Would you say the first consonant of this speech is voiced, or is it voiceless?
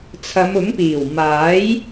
voiceless